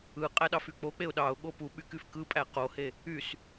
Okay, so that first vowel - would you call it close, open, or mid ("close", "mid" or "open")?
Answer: close